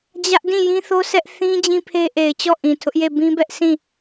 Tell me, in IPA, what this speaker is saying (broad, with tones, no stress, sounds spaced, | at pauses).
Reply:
d͡ʑ ä˦ ʔ d ĩ˦˨ j ĩ˦ θ o˦ sʰ ɛ˦ ʔ θ ĩ˦ d͡ʑ ĩ˦ pʰ e˦ ʔ e˨ ɪ̯ t͡ɕ ɔ˦˨ ʔ ĩ˨ tʰ ʊ˦ ʔ j e˦˨ b ĩ˦ b ɛ˦ ʔ sʰ ĩ˦˨